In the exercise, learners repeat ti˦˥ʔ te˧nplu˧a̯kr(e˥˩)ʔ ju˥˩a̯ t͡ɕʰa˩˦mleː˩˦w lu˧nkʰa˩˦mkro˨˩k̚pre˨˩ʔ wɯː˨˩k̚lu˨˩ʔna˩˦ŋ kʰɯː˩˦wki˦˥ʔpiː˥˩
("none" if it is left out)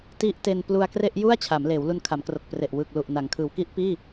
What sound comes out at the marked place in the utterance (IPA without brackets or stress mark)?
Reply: e˥˩